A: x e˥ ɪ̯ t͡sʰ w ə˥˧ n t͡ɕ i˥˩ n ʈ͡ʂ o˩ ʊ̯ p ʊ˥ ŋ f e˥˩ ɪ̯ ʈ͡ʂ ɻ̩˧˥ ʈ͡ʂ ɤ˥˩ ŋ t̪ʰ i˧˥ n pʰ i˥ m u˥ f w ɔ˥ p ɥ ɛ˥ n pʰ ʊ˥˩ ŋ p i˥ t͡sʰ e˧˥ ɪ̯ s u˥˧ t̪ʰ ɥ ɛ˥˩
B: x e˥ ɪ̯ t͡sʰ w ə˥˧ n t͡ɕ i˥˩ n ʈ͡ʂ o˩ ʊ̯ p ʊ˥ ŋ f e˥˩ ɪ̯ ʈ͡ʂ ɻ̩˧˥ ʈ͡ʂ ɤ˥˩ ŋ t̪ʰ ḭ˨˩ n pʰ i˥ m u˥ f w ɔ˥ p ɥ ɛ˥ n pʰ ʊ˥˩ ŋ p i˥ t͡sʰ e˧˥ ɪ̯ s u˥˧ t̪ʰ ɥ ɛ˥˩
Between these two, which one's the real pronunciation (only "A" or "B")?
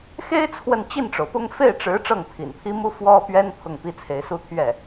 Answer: B